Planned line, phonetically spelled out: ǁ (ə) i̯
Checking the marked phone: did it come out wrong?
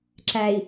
yes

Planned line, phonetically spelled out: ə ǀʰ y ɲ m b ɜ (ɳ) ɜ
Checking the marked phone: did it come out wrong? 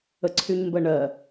no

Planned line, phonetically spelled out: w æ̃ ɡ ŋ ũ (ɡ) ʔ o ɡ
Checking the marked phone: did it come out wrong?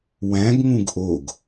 no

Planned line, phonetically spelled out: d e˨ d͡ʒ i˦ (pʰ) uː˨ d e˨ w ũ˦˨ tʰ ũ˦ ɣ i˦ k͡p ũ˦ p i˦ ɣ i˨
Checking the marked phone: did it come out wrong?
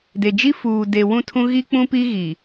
yes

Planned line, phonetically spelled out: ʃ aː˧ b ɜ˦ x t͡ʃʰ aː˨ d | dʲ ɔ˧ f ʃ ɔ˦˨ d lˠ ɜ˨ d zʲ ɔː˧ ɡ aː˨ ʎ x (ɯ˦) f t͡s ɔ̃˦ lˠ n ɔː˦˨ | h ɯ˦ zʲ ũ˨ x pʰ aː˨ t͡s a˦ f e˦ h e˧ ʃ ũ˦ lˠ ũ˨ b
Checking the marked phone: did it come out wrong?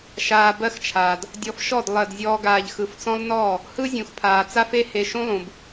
yes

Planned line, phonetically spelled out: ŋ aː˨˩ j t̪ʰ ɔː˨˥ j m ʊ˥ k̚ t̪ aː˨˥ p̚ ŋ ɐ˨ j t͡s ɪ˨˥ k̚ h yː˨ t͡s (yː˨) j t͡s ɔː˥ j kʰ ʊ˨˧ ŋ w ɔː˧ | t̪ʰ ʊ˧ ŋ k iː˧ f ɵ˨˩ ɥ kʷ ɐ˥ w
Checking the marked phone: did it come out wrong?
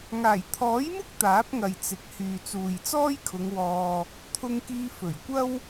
yes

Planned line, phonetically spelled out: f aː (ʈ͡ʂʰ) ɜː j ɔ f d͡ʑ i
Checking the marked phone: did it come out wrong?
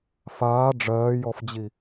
yes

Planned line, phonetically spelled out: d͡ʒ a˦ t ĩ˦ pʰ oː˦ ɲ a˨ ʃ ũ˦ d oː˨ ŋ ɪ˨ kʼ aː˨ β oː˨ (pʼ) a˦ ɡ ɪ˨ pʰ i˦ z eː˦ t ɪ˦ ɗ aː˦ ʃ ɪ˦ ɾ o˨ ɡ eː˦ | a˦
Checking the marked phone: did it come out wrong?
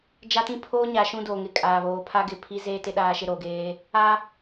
yes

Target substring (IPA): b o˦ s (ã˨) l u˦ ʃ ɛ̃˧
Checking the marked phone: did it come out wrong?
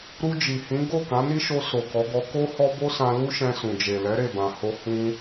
yes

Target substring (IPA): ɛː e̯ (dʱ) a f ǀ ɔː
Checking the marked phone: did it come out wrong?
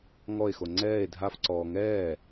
no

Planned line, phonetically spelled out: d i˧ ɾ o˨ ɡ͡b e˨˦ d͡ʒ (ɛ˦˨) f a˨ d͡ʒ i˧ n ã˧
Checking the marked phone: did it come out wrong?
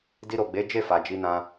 yes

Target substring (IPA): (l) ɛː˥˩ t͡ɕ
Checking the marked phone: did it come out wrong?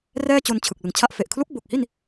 yes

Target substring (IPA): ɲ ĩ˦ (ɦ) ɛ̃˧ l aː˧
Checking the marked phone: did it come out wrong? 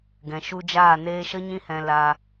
yes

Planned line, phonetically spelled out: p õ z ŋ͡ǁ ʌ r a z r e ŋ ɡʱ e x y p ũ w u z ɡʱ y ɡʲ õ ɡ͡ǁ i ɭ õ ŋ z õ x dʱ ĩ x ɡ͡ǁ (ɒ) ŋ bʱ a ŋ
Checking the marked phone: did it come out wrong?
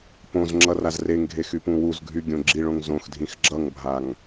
yes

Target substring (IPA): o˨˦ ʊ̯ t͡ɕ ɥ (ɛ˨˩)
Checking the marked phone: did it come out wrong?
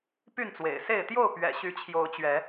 yes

